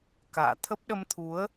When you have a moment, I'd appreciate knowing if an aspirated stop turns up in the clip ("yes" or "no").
yes